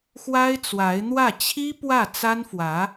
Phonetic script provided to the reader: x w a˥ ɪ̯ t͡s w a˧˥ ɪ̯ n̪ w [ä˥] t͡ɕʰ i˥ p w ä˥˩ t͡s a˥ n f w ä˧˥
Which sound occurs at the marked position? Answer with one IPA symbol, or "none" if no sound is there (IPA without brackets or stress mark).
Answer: ä˥˩